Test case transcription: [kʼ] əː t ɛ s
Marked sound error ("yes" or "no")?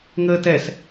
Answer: yes